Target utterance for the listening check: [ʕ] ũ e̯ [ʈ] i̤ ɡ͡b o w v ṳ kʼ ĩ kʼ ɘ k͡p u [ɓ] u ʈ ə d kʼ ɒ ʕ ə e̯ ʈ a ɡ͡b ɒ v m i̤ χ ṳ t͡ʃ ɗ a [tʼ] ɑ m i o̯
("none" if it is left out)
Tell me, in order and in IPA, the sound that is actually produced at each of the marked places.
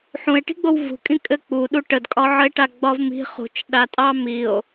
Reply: ħ, ʈ, ɗ, tʼ

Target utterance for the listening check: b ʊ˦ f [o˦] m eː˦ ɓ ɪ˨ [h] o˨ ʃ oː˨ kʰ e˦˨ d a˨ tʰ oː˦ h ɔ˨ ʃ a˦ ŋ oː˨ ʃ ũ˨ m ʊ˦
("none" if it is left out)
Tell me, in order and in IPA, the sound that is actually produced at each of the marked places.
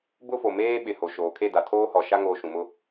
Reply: o˨, h

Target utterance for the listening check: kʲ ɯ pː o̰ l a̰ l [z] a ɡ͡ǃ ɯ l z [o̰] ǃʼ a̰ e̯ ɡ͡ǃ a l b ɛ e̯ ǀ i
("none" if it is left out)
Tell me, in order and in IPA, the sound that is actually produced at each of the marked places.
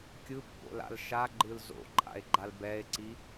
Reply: ʃ, o̰

